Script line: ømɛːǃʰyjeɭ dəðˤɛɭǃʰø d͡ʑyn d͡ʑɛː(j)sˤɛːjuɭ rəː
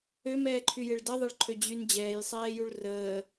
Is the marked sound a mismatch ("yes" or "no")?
no